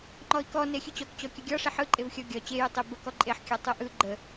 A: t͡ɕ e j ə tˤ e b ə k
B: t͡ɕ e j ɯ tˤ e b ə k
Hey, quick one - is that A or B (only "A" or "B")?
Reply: B